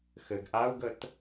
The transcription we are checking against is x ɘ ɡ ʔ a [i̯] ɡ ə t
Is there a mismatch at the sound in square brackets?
yes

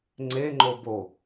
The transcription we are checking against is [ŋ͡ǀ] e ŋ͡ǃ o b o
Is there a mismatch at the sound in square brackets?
no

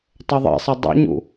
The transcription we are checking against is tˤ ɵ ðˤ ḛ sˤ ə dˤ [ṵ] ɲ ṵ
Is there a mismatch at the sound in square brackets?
no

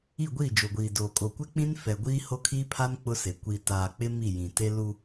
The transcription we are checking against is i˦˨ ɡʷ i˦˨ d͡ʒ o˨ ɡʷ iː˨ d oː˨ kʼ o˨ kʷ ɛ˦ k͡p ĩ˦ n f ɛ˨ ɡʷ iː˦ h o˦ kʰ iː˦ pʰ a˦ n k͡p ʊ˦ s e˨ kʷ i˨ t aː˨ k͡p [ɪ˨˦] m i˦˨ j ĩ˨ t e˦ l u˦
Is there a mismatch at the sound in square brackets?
yes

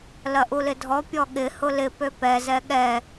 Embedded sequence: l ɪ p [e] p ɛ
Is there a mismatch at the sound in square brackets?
yes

